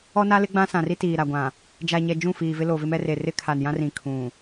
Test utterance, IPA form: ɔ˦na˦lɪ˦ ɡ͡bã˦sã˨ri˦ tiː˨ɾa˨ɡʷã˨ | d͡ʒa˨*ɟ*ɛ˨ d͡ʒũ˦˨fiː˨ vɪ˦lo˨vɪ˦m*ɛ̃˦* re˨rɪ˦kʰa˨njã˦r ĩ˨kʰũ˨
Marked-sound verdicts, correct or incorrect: incorrect, incorrect

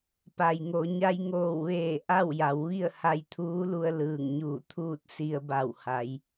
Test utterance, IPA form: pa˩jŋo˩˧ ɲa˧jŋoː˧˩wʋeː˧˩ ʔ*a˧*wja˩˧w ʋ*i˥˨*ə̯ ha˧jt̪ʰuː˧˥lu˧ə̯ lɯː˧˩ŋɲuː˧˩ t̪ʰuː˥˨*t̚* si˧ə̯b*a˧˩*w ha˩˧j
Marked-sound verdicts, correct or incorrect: incorrect, correct, correct, correct

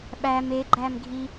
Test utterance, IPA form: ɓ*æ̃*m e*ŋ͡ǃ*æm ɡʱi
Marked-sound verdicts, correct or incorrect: incorrect, incorrect

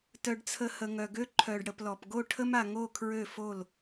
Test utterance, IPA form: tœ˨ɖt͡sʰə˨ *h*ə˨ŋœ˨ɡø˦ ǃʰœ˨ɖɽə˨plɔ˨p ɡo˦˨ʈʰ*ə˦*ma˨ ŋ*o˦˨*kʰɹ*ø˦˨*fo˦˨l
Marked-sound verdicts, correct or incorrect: correct, correct, correct, correct

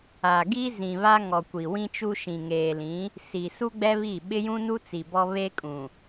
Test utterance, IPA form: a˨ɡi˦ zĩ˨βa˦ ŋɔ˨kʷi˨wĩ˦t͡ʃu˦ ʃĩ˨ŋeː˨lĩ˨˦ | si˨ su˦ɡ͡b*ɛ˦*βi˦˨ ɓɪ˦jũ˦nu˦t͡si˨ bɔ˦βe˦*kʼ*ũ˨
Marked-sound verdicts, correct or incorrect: correct, correct

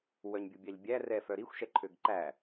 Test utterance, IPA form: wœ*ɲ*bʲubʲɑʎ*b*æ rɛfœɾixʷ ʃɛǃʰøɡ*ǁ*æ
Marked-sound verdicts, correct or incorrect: correct, incorrect, incorrect

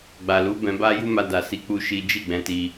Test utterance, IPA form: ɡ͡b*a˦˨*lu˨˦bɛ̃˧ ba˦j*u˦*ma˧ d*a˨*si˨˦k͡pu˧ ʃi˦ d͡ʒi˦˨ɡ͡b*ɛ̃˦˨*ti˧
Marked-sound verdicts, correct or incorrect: incorrect, correct, correct, incorrect

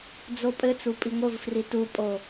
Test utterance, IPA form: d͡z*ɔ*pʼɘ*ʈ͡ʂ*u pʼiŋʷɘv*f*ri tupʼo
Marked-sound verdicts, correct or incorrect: incorrect, incorrect, correct

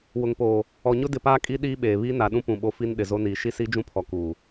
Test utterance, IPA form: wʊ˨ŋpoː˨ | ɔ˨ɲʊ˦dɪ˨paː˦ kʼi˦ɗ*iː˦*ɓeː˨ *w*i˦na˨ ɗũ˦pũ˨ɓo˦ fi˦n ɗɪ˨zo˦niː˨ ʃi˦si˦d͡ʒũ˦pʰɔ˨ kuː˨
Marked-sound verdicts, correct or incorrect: correct, incorrect

